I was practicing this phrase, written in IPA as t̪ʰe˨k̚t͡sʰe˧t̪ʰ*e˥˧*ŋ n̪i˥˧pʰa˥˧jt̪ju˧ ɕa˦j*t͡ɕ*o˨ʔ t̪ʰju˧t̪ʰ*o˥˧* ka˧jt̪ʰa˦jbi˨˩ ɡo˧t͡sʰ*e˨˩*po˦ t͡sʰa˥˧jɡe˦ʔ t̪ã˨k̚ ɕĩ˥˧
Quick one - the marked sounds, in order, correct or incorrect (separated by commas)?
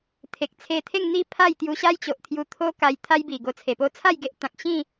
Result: correct, correct, incorrect, correct